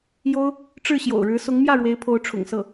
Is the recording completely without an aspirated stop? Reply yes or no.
no